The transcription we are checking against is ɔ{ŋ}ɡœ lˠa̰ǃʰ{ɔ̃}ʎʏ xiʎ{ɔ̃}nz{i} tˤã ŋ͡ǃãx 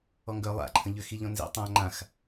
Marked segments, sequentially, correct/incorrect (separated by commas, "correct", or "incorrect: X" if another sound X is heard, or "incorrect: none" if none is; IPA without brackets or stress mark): correct, incorrect: ə̃, correct, incorrect: ḭ